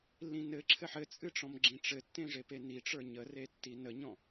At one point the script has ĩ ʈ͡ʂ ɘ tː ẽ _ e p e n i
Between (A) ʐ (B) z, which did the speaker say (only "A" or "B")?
A